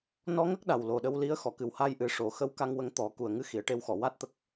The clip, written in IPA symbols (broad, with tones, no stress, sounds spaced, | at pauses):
n ɔ˧ ŋ ə˦˥ k̚ ɗ a˨˩ w l o˨˩ ɗ ə˧ w l i˧˥ ə̯ x ɔ˨˩˨ k ɨ˨˩ w h a˧ j ʔ ɨ˨˩ ʂ o˨˩˨ x ə˧˥ w k a˧ ŋ w ə˧ ŋ t̪ ɔ˨˩˦ k u˨˩ ə̯ ŋ ɨ˧˥ x i˨˩˨ ə̯ ʈ e˧ w x ɔ˨˩˨ w a˦˥ t̚ t̪ ə˦˥ k̚